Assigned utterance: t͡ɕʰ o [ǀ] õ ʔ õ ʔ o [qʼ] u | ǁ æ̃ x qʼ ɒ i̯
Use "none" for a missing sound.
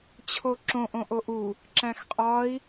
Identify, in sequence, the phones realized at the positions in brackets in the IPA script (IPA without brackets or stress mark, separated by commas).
ǁ, ʔ